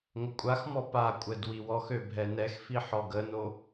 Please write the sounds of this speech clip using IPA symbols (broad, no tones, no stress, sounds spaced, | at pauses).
ŋʷ ə kʷʼ a x m ɔ p a kʷʼ ɛ d w i w ɔ x ø bʱ ɛ n ɛ x f i ħ ɔ ɡ ə n o